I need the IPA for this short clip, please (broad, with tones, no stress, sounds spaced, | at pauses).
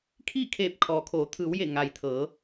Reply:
kʰ iː˥˨ kʰ eː˧˩ p̚ kʰ ɔː˩ kʰ oː˩˧ t̪ʰ ɯː˩˧ w j e˧˩ ŋ a˩ j t̪ʰ ɤː˩˧